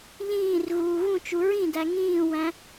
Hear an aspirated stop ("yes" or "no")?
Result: no